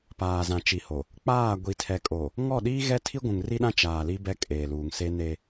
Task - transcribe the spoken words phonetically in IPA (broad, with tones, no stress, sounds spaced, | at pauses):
p aː˨ z ã˨ t͡ʃ i˨ h o˨ | k͡p aː˦˨ ɡʷ i˨ tʰ ɛ˨ kʼ o˨ | ŋ ɔ˦˨ ɗ iː˦ ɣ ɛ˦ tʰ i˦ ɡʷ ũ˨ ŋ r i˦ ɗ ã˦ t͡ʃ aː˨ l i˦ b ɛ˦ kʼ eː˨ l uː˨ ŋ s e˦ n e˦